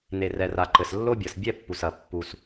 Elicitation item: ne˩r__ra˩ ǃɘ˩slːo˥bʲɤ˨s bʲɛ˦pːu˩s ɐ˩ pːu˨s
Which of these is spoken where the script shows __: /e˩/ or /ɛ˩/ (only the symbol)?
ɛ˩